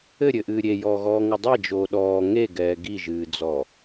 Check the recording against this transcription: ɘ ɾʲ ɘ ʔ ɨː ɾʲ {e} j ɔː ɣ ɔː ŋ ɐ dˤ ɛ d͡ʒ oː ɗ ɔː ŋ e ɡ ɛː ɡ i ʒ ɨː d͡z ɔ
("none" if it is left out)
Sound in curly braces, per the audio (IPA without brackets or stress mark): e